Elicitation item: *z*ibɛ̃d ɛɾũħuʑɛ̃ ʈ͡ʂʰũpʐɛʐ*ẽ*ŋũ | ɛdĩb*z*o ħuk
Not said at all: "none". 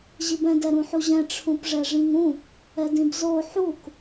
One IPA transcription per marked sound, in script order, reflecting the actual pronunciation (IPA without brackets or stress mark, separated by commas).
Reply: ʑ, ĩ, z